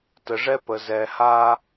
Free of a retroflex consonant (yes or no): no